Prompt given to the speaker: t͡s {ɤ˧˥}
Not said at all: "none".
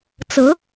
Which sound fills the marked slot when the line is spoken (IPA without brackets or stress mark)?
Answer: ɤ˧˥